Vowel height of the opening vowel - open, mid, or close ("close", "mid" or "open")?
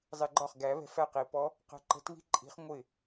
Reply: close